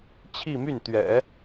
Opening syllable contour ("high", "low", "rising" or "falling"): falling